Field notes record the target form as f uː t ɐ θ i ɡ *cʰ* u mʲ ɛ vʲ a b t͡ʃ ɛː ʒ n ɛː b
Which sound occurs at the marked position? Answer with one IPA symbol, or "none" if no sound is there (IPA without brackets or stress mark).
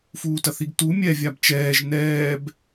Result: t